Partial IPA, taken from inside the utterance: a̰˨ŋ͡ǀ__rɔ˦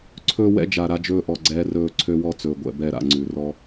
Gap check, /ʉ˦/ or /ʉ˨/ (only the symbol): ʉ˨